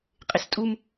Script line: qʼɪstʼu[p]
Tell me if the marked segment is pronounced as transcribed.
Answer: no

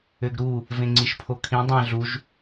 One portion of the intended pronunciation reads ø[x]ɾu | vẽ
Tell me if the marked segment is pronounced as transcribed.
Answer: no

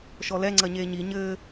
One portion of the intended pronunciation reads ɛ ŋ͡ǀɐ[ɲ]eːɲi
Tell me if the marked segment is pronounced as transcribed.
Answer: yes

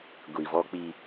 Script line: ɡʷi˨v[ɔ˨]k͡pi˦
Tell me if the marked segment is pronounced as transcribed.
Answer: no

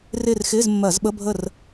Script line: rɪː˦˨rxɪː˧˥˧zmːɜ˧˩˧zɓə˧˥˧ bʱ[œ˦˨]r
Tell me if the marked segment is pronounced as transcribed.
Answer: no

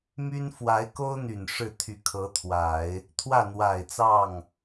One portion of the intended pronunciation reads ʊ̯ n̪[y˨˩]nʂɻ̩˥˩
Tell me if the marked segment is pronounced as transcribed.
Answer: yes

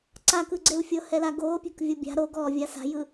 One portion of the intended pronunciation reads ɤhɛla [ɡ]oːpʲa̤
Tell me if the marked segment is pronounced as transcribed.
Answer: yes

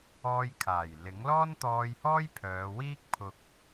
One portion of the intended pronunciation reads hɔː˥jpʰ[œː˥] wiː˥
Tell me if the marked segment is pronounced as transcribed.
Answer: no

